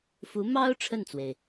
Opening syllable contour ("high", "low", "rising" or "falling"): rising